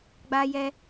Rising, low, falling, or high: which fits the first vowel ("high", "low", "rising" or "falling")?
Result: high